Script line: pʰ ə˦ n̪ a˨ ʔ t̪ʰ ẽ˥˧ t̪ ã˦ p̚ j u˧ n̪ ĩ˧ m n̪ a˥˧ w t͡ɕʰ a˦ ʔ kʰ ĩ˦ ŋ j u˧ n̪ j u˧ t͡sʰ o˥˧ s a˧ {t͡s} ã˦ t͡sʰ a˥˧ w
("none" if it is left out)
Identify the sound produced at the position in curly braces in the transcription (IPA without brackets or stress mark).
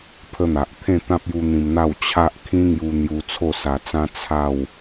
t͡s